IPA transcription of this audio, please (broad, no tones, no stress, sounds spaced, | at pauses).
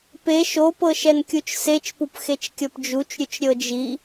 p e ʃ o p ɤ ʃ ɛ n kʲ u t͡ʃ s e t͡ʃ p u p x e t͡ʃ kʲ ɤ p d͡ʒ u t͡ʃ ɾʲ u t͡ʃ ɾʲ ɤ d͡ʒ i